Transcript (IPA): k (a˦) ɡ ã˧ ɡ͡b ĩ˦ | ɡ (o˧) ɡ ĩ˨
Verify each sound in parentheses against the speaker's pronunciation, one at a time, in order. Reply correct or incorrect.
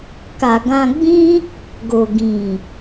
incorrect: a˨, incorrect: o˨

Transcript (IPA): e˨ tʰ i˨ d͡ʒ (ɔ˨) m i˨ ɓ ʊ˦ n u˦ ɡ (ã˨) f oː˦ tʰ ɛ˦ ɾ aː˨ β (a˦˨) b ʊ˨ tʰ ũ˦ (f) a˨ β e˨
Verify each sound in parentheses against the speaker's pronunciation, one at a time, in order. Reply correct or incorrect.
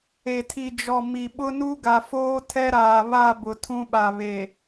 correct, incorrect: a˨, correct, incorrect: ɓ

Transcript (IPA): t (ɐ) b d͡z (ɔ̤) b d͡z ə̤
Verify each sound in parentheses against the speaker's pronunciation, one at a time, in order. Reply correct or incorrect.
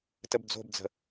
incorrect: ə, incorrect: o̤

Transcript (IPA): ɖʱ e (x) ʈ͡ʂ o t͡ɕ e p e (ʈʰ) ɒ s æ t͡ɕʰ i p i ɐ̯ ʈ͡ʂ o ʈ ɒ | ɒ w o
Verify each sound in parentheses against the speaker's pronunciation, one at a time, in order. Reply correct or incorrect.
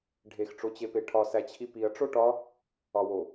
correct, correct

